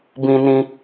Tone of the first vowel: high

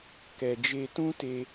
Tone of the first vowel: low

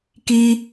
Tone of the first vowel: high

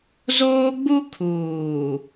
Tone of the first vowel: high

